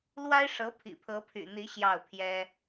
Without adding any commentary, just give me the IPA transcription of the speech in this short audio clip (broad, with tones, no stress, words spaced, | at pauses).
lwa˥ɪ̯ʂɤ˧˥ pʰḭ˨˩pʰɤ˧˥pʰy̰˨˩n̪i˧˥ ɕjɑ˥˩ʊ̯pʰjɛ˥